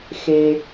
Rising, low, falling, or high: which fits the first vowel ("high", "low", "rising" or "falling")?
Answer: high